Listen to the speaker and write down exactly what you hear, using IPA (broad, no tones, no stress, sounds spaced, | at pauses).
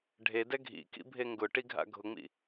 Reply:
ɖʱ e d ɛ ɡʱ ḭ k ḭ bʱ e ŋ ɡ ʊ ʈ i ɡʱ a̰ ɡʱ ʊ ŋ͡m ḭ